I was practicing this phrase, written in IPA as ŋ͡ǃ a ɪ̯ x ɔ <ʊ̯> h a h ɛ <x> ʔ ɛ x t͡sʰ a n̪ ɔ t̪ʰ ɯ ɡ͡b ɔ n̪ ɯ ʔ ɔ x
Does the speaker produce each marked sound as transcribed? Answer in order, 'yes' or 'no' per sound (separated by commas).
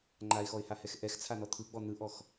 no, yes